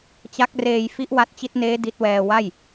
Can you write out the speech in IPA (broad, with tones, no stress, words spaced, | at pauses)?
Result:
t͡ɕa˦˥k̚reː˧j fi˦˥ʔwa˦˥t̚t͡ɕi˦˥t̚neː˦˥ di˦˥t̚wɛː˧ wa˥˩j